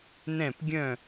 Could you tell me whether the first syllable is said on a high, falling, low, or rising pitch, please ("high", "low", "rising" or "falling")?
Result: falling